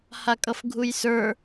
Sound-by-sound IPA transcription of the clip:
h a kʼ ʌ f ɡʱ u j s ə˞

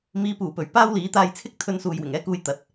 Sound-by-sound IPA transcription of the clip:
m iː˨˧ p uː˨˩ p ɵ˨˩ ɥ p aː˥ w l iː˨˥ t̪ aː˧ j t͡sʰ ɪ˥ k̚ t̪ʰ ɵ˧ n s uː˨ j w ɪ˨˩ ŋ ɛː˥ k uː˧ j t̪ ɐ˨ t̚

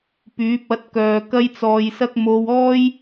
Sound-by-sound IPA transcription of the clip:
p yː˨˥ p̚ ɐ˨˥ t̚ k œː˨ k ɐ˥ j t͡s ɔː˧ j s ɐ˥ k̚ m o˧ w ɔː˥ j

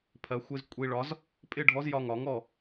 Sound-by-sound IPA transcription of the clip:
pʰ ɜ˩˧ xʷ ɪ˧ z kʷʼ i˧ ɭ ɒ˨˥ z | pʼ ɪ˥˩ ɖʱ ɔ˨˥ z j ɒ˧ ŋ ɒ˩˧ ŋ ɔ˥˩

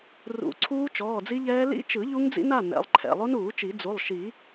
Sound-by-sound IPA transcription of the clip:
r ṵ˨˩˦ ǀʰ uː˦˥ t͡ʃ ɔː˩˧˩ d͡z i˦˥ ʎ ɛː˦˥ l ḭ˦˥ t͡ʃ ɯ˨˩˦ ʎ u˦˥ ŋ d͡z ḭ˦˥ n a˩˧˩ n ɛ̰˩˧˩ lˠ ǃʰ ɛ̰˩˧˩ lˠ o˦˥ n uː˨˩˦ t͡ʃ i˨˩˦ d͡z u˩˧˩ lˠ ʃ i˨˩˦

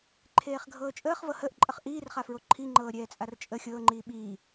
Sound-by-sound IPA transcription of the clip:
ǃʰ eː χ ɡʱ ɤː t͡ʃʼ əː χ v ɤ h əː ʔ ǃʼ ə χ ʔ iː r χ a f ɹ o ǃʰ i ŋ͡ǃ ɤː ɾʲ ɛː t͡sʼ a r t͡ʃʼ ə xʲ ɤː ŋ͡ǃ iː ɓ iː

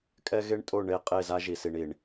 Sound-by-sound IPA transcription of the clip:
kʼ ɛ˦ ɣ e˦ ɳ tʼ o˦˨ ɳ e˦˨ qʼ e˦˨ z a˦ ʒ i˨ s i˨ ɳ i˨ ɳ

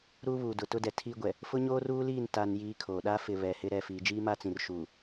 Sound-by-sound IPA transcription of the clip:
ɾ uː˦ β uː˨ d ʊ˨ t ʊ˦ d ɛ˨ tʰ iː˦ ɡʷ ɛ˨ | f ʊ˦ ɲ oː˦ r uː˦ l iː˦˨ n t a˨ n j iː˦ kʰ oː˨ ɗ a˦ f ɪ˨ β ɛ˨ h ɪ˦ ɾ ɛ˨ f iː˨ d͡ʒ iː˦ m a˦ t͡s ĩ˨ r ʃ uː˨

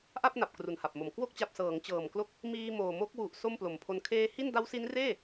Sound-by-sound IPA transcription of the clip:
ʔ a˥˩ p̚ n a˨˩ p̚ k r u˨˩ n h a˨˩ p̚ m o˨˩ m k w o˥˩ k̚ t͡ɕ a˨˩ p̚ s ɤː˩˦ ŋ t͡ɕ ɤː˨˩ m k l o˦˥ k̚ | m iː˧ m oː˨˩ m o˦˥ k̚ w u˨˩ ʔ s o˥˩ m p l o˨˩ m pʰ o˧ n kʰ eː˧ h i˥˩ n d a˦˥ w s i˦˥ n r eː˥˩

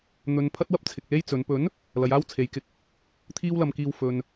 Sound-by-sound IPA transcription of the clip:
n̪ ɵ˨ n pʰ ɐ˥ t̚ w ɐ˥ p̚ t͡sʰ ɪ˧ k̚ l e˥ j t͡s ɵ˨˧ n p ɵ˨˥ n | l ɐ˨˧ j aː˥ w t͡sʰ e˨ j k ɪ˧ k̚ | t̪ʰ iː˥ w l ɐ˧ m k iː˧ w f ɵ˨ n

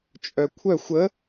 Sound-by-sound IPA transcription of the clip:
t͡ʃʼ œ kʷʰ œ xʷ ə

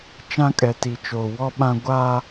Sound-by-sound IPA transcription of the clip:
t͡ʃ ã˦ kʼ ɛ˨ t i˨ t͡ʃ oː˨ w ɔ˦ ɓ ã˦ ɡʷ a˦

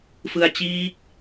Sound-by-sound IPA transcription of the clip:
f ɯ˧ a̯ t͡ɕ iː˦˥ k̚

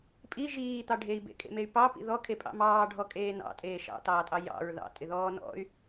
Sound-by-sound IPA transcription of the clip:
pʼ i ʒ iː t̪ ɑ ɖʱ e i̯ b ḛ kʼ ḛ m e y̯ p ɑ p ḭ ð ɔ kʰ e pʼ ɑ̰ m ɑː ɖʱ ɔ kʼ eː n ɑ̰ tʼ eː ʃ ɑ̰ t ɑː tʼ ɑ j ɑ̰ ɹ ð ɑ̰ tʼ ɪ ð ɔː n ɔ̰ y̯

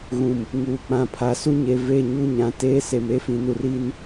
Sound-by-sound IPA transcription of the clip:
ɣ ũ˨ m | ŋ uː˨ k͡p ã˨ pʰ a˨˦ s u˦ ɲ e˨ v e˦˨ ɲ u˦ ɲ ã˨ t eː˦ s e˨ m e˦ f ĩ˨ n u˨ r i˦ n

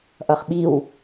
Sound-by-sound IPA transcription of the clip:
ʔ ʌ χ ɓ i w

